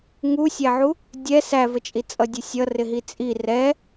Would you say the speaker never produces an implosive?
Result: yes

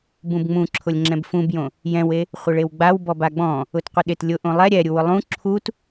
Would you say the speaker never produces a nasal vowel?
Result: no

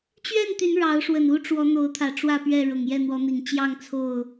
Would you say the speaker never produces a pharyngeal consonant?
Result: yes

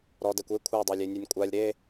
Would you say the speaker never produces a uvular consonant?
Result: yes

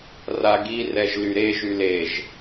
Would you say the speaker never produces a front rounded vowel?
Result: no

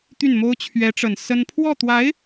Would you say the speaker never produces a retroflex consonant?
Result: no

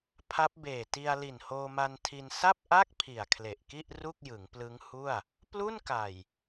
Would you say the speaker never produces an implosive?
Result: yes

